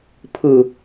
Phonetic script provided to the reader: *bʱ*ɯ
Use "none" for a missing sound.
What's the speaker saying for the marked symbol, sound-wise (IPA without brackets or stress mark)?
pʰ